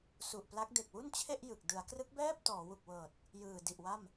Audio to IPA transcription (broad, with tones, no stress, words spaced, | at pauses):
su˨˩ʔpla˦˥k̚ de˨˩k̚wu˥˩nt͡ɕʰe˥˩ʔ jɯ˨˩k̚ dɯ˩˦a̯krɯ˦˥k̚bɛː˥˩p̚ tɔː˩˦wu˨˩k̚wɤː˨˩t̚ | jɯː˨˩di˨˩ʔwa˥˩m